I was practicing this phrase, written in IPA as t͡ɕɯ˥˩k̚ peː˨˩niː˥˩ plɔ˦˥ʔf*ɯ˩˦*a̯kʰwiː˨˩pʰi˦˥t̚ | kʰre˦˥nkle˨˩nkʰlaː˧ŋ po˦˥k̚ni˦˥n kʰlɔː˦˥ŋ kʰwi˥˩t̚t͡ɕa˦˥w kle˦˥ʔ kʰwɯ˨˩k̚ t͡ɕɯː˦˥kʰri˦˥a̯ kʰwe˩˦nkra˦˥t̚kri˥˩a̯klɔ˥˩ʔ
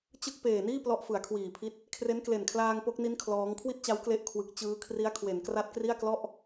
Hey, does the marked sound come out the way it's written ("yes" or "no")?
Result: yes